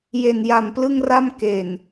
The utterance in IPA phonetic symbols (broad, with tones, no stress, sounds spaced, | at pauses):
j e˨˩ n j a˨˩ m p l ɯ˥˩ ŋ r a˥˩ m k e˨˩ n